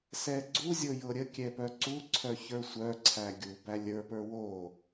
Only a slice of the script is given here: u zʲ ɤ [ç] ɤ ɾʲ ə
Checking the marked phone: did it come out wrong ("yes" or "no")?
yes